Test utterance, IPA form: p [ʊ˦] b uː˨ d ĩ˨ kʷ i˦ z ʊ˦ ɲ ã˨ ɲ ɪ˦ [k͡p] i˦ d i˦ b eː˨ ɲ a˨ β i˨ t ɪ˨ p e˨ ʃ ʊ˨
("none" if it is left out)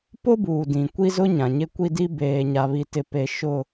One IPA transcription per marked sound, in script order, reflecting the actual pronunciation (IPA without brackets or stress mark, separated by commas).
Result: ʊ˦, kʷ